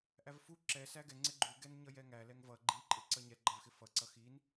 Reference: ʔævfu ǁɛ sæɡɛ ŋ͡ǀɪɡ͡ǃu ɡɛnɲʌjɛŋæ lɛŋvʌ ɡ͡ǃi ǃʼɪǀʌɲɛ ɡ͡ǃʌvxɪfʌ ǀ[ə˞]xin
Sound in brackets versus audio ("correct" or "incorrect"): incorrect